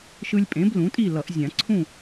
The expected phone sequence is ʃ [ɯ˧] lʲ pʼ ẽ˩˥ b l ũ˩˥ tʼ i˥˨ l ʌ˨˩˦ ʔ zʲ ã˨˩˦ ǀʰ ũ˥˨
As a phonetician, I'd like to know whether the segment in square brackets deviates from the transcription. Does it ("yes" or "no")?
no